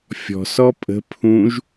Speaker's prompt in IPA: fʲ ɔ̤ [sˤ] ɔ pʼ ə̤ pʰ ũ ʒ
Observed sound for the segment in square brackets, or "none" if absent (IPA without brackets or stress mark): s